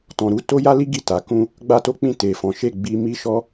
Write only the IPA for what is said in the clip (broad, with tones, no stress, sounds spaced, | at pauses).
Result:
t ɔ̃˨ ɾ u˧ t o˦ j a˦ l i˦ ɡ i˦˨ t a˨˦ k ũ˦ | ɡ͡b a˦ t o˦ k͡p ĩ˦˨ t e˨ f ɔ̃˨˦ ʃ e˦˨ ɡ͡b i˧ m i˦ ʃ ɔ˦